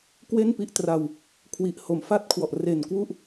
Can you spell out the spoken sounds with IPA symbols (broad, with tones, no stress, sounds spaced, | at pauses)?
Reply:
k w e˥˩ n p i˦˥ ʔ t r a˧ w | kʰ w i˨˩ ʔ h o˨˩ m f a˥˩ t̚ kʰ w ɔ˨˩ ʔ r e˨˩ n k w u˥˩ ʔ